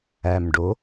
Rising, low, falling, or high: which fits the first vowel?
low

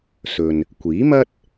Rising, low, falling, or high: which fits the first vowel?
low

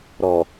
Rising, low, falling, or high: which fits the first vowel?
low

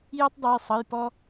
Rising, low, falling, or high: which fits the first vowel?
high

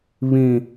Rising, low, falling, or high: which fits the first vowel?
high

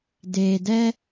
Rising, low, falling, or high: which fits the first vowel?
low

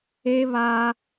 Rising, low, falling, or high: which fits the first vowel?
high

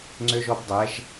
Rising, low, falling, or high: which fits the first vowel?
high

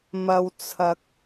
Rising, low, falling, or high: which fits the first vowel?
low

